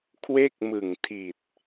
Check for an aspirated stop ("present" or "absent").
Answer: present